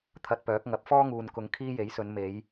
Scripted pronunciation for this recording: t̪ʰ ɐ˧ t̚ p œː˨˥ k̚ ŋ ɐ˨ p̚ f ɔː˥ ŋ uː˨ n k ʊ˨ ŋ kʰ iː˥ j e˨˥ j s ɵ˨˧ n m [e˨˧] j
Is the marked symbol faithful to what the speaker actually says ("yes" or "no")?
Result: yes